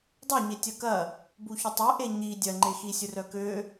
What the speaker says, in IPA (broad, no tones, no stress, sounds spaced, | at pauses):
dˤ œ ɲ e tʲ ɐ k ɐ | b u ç ʊ tˤ ø ʔ e ɲ i dʲ ɐ ŋ͡ǃ e x i sʲ ʊ r œ k ø